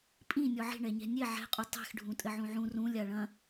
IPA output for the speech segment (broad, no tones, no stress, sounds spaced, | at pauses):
pʼ ĩ nʲ ɔ ʕ i̤ ɳ ɛ ɲ ɛ̤ nʲ e ʕ ɛ̤ qʼ u tˤ ɛ̤ x ɖʱ ũ tʼ ɘ ʕ ũ ʕ ũ r ũ lʲ a ɭ ɐ̃